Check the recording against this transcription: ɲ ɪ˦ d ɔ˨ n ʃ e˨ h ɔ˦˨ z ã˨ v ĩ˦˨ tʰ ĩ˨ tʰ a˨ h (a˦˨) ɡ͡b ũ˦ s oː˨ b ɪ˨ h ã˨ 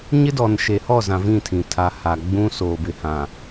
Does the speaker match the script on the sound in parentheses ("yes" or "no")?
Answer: no